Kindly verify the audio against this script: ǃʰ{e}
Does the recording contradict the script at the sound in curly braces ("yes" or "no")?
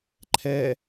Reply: yes